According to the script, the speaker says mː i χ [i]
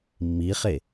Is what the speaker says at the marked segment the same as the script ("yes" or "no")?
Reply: no